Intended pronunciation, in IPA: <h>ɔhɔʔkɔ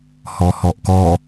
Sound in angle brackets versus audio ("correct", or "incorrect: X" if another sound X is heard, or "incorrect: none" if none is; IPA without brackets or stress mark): correct